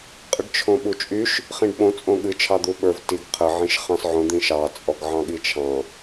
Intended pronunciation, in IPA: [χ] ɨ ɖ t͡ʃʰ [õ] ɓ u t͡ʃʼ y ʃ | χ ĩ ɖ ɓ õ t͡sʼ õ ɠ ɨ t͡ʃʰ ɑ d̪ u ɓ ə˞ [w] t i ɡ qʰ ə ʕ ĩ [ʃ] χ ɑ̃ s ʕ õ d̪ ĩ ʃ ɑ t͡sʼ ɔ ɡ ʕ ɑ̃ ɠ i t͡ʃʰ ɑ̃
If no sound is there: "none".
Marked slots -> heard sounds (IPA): qʼ, õ, v, ʃ

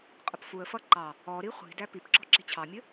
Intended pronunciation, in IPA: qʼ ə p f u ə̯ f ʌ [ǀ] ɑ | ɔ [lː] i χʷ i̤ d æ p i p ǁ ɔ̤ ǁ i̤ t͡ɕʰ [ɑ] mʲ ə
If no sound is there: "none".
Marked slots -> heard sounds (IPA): ǃ, ɾ, ɑ

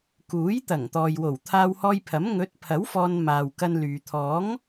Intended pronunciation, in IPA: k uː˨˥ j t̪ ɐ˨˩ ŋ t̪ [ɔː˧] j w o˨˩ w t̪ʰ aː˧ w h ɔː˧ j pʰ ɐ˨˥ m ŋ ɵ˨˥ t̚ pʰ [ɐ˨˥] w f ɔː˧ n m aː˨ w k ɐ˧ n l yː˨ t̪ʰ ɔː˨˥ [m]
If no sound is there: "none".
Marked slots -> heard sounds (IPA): ɔː˨, ɐ˨˥, ŋ

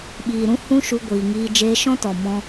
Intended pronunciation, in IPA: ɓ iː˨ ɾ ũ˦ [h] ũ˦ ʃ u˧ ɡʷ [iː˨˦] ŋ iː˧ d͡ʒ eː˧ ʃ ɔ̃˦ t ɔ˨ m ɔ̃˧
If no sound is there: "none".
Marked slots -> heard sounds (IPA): h, iː˨

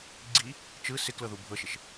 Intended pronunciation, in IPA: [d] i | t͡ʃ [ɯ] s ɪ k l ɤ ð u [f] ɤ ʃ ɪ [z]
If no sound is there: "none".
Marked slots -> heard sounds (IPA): ɡ͡ǀ, ɯ, bʱ, ʃ

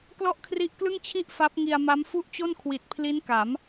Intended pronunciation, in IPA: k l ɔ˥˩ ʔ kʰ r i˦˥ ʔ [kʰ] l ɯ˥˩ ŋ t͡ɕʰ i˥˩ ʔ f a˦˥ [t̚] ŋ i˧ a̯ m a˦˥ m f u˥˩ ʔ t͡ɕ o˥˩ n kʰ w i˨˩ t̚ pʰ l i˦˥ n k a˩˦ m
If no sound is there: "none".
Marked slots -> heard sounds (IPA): k, p̚

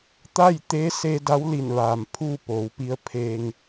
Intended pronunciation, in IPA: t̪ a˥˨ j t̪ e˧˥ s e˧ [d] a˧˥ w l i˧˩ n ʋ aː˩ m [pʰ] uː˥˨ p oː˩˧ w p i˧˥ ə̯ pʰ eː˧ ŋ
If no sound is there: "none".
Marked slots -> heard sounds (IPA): d, pʰ

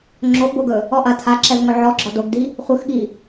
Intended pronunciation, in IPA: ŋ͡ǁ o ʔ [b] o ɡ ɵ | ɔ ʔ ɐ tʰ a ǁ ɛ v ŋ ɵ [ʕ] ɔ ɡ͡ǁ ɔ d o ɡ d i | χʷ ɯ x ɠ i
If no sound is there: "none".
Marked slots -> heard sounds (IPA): b, ʕ

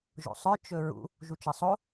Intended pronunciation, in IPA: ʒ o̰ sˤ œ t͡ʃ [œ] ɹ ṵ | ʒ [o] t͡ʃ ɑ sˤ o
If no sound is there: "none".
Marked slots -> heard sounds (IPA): ɵ, u

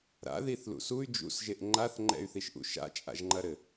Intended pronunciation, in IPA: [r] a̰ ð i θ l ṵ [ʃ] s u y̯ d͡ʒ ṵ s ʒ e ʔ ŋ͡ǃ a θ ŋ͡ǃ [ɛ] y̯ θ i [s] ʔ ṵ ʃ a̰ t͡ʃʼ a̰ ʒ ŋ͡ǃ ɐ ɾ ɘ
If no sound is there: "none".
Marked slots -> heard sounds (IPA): ɾ, none, ɛ̰, ʃ

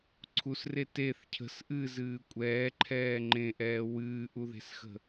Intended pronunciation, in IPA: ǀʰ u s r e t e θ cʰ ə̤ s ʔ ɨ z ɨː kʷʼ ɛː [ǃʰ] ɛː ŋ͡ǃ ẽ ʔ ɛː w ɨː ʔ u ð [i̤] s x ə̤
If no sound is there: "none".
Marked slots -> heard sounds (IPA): ǃʰ, e̤

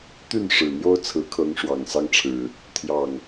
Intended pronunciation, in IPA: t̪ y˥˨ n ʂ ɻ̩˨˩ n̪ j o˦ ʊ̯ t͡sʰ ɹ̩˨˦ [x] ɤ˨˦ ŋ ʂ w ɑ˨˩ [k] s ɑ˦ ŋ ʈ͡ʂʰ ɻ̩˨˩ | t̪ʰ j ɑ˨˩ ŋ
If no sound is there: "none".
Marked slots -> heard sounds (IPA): kʰ, ŋ

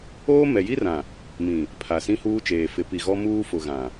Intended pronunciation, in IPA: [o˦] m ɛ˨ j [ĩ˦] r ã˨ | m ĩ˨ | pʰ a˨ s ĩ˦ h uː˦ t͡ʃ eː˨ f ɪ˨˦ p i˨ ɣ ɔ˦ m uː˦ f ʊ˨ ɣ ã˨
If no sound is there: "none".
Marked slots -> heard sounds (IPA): oː˦, i˦

